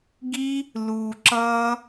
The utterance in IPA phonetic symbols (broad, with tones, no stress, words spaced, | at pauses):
ɡi˦ | luː˨ ǁʌː˦